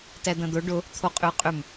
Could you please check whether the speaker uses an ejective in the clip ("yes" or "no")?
yes